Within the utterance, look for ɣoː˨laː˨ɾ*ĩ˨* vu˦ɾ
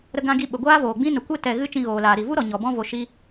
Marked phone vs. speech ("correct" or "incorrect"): incorrect